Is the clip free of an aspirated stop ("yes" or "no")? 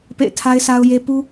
no